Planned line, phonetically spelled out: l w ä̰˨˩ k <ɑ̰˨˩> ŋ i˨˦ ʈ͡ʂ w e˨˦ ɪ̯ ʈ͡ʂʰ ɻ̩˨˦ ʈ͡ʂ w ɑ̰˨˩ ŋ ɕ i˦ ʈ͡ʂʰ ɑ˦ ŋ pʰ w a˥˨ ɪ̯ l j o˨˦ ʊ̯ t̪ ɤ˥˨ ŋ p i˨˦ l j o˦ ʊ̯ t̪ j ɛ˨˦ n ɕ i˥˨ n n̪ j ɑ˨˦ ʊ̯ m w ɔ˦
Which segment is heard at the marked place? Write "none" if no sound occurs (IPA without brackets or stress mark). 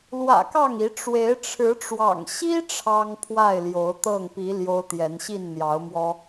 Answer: ɑ˥˨